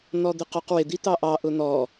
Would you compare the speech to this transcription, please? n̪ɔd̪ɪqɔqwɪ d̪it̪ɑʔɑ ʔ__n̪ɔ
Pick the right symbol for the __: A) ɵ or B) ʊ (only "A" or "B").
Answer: B